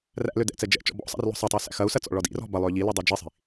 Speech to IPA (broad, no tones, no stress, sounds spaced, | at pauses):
r æ̰ l ø d ɛ̰ t͡s ɛ d͡ʒ ɛ̰ t͡ʃ ɔ̰ b ɔ̰ sˤ æ̰ r l ɔ̤ sˤ ɐ tˤ ɯ u̯ s æ̰ x ɐ u̯ s ɐ t͡s ɔ̰ ɭ ɔ d ḭ r ɔ̤ b ɐ lˠ ø ʎ i l i dˤ i d͡ʒ i sˤ i̤